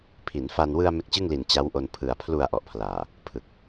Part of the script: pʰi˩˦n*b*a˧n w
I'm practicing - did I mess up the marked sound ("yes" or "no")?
yes